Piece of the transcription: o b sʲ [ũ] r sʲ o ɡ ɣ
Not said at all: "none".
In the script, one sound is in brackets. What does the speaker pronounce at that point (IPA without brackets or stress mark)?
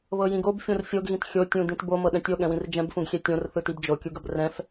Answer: õ